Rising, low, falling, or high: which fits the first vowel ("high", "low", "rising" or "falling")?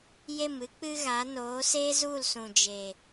falling